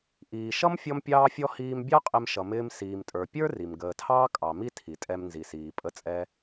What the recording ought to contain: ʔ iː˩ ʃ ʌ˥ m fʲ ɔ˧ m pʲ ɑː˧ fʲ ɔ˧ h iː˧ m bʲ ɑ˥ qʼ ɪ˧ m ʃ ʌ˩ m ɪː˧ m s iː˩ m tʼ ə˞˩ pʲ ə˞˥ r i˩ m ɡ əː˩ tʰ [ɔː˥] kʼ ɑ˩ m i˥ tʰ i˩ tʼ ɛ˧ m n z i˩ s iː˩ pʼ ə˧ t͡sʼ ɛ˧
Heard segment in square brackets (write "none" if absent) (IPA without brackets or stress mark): ɑː˥